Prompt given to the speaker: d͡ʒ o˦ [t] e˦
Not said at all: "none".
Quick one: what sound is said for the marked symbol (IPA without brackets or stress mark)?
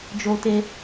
t